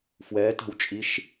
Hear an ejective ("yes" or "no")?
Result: yes